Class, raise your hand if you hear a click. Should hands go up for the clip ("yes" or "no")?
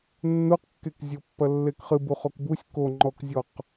yes